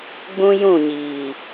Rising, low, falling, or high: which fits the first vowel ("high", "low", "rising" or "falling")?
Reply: high